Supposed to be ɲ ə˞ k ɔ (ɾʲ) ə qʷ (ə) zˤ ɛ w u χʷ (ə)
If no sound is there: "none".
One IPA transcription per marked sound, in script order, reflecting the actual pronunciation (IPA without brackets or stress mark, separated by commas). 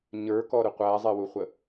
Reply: ɾ, æ, ə